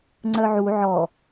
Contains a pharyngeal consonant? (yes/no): yes